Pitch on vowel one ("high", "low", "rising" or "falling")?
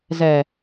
low